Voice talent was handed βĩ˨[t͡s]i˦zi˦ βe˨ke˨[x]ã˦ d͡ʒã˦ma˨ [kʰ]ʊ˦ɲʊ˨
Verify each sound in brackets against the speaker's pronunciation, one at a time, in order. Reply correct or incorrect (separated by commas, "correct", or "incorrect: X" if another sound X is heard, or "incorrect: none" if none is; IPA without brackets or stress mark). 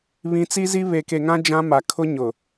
correct, incorrect: ŋ, correct